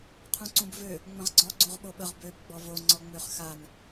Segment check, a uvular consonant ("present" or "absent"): present